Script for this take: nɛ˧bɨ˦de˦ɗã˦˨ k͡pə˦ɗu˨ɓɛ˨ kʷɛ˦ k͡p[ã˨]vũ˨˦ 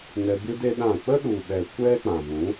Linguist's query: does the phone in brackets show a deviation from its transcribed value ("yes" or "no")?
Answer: no